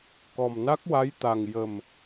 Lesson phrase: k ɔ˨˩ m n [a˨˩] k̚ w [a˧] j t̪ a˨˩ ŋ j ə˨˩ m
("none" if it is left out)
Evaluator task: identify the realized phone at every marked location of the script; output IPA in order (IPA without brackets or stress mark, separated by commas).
a˦˥, a˧˥